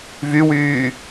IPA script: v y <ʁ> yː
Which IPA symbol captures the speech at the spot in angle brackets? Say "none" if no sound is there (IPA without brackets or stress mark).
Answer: w